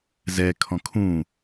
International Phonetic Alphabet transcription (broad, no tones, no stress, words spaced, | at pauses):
zɛ kʰɔ̃kʰũ